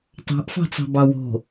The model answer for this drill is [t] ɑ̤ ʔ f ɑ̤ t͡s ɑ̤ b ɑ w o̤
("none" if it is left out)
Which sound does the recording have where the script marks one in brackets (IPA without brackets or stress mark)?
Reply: t